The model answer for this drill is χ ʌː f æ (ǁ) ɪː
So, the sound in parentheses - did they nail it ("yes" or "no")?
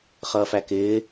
no